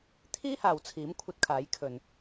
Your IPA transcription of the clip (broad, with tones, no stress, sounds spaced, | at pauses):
t̪ʰ iː˥ h aː˨ w t͡sʰ iː˨˥ m kʷʰ ɐ˧ t̚ kʰ aː˨˥ j kʰ ɵ˨ n